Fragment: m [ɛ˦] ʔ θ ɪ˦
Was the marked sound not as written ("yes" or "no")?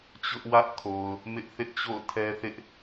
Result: yes